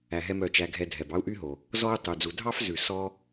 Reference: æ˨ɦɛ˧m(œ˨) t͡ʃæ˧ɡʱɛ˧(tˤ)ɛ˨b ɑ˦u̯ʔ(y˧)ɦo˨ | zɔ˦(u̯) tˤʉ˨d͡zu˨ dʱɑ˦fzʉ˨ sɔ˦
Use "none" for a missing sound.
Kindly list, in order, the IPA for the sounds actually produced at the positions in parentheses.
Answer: œ˨, dʱ, y˦, u̯

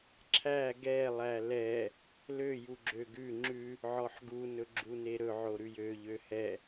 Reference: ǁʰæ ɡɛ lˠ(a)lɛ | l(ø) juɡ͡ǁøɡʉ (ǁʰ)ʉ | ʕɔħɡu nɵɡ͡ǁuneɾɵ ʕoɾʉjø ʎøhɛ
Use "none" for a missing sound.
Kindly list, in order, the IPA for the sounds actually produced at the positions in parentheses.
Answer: æ, ø, ŋ͡ǁ

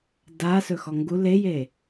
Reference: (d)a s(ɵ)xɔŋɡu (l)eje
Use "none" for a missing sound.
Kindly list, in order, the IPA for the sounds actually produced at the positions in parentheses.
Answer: d, ɵ, l

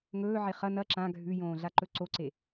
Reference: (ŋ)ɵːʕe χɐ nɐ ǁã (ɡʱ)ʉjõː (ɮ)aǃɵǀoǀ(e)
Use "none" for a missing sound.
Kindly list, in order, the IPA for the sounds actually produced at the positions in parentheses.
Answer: ŋ, ɡʱ, ɮ, e

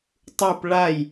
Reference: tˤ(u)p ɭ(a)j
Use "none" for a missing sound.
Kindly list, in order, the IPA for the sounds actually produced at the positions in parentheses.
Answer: u, a

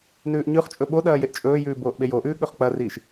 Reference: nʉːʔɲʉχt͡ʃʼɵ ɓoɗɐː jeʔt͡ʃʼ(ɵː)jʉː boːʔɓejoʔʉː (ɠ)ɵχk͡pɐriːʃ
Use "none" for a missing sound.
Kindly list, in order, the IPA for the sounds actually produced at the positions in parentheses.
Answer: ɵː, ɠ

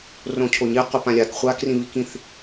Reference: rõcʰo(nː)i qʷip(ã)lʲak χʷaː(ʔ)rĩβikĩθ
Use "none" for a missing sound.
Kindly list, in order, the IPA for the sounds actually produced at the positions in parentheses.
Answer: ɲ, ã, k

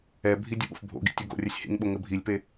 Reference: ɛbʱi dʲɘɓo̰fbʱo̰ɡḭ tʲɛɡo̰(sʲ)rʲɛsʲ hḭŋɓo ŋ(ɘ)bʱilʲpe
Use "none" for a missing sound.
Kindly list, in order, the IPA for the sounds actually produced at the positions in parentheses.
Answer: none, ɘ

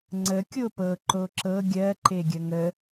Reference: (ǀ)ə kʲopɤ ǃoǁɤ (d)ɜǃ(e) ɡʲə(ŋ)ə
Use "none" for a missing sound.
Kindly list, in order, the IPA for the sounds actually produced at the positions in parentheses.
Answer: ŋ͡ǀ, ɡʲ, e, ŋ

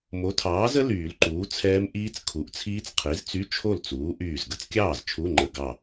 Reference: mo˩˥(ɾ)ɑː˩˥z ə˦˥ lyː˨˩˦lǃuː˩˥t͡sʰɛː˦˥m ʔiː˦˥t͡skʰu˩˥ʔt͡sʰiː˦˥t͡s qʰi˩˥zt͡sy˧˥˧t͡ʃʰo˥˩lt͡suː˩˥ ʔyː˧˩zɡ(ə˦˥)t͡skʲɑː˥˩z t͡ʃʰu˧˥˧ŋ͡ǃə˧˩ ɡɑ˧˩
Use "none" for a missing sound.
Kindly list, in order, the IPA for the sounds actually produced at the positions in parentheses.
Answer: tʰ, ə˧˥˧

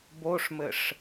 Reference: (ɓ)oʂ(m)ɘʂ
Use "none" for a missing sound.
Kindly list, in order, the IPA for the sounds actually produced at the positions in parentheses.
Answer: b, m

